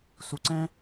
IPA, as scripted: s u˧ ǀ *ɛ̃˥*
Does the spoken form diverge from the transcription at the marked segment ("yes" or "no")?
no